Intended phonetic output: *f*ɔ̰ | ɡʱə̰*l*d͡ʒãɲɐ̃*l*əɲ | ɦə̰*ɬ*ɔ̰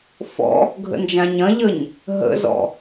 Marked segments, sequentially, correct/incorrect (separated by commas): correct, incorrect, incorrect, incorrect